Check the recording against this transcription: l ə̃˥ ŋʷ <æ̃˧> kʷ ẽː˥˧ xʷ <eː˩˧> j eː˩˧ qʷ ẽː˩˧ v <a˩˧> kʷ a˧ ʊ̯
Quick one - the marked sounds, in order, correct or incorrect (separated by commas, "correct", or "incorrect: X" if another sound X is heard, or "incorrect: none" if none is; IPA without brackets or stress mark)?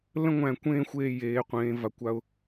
correct, incorrect: eː˧˩, correct